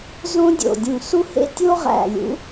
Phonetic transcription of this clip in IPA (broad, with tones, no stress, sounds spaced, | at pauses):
z õ˥ dʲ o̰˧˩ dʲ ũ˧˩ s u˥ h ḛ˥ tʲ o˥ ʁ æ̰˧˩ lʲ ṵ˨˥